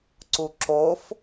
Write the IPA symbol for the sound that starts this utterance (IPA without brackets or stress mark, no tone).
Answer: ǀ